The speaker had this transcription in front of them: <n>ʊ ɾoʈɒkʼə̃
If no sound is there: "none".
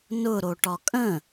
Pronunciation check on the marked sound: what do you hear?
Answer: n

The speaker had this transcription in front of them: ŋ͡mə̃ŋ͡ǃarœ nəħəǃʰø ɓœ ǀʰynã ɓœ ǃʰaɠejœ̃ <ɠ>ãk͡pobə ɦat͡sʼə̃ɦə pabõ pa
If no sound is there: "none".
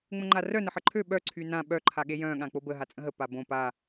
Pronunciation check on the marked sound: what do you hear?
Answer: ɠ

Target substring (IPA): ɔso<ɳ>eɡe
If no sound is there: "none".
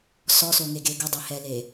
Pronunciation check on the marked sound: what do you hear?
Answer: ŋ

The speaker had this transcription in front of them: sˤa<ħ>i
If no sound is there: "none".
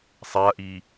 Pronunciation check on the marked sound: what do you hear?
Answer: ʔ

